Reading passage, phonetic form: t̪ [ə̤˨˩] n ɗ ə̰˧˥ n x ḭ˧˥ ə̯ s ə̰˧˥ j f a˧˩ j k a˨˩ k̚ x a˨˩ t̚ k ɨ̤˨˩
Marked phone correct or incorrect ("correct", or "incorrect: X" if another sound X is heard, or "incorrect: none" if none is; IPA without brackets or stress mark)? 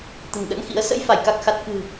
correct